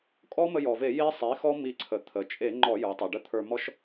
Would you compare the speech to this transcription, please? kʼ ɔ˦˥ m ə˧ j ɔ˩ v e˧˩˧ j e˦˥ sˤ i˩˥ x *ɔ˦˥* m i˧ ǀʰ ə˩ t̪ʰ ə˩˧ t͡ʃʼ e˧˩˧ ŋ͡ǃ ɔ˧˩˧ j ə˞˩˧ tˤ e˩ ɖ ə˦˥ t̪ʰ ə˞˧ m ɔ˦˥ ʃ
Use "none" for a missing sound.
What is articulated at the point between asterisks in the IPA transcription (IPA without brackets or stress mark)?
ɔ˦˥